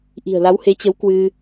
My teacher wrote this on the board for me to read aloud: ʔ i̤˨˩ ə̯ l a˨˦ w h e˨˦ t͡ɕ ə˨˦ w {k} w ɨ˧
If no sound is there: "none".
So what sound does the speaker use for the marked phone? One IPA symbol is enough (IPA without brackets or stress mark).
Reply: k